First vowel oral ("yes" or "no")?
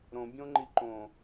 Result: no